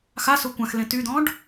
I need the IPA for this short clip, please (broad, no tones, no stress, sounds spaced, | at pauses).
x a s o kʷ ã x l ẽ t y d̪ ɔ̃ ɖ